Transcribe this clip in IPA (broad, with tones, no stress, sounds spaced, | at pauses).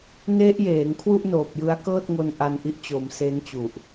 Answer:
n e˦˥ ʔ j eː˩˦ ŋ kʰ w u˥˩ ʔ n oː˨˩ p̚ j ɯ˦˥ a̯ k ɤː˥˩ t̚ ŋ o˧ n ʔ a˧ n ʔ i˦˥ ʔ t͡ɕ o˩˦ m s e˦˥ n t͡ɕ u˨˩ ʔ